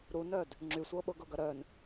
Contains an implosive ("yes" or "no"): yes